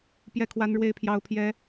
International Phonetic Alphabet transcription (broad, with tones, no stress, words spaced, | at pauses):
pjɛ˥˨kʰwa˦n ɻwe˦ɪ̯pʰjɑ˦ʊ̯ pʰjɛ˦